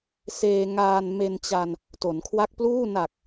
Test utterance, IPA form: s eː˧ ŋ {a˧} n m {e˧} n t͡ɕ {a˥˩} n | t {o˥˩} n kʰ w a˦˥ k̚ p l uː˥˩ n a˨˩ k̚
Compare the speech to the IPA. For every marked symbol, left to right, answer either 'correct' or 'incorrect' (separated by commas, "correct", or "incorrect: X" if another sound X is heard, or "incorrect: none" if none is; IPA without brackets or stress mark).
incorrect: aː˧, correct, incorrect: a˧, incorrect: o˩˦